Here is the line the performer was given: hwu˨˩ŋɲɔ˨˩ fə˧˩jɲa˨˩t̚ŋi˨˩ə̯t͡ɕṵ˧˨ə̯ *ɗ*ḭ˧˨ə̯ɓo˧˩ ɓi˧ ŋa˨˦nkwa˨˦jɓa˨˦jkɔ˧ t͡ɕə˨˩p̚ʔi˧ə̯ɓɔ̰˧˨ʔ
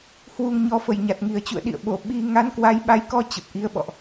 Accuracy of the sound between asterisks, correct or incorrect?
correct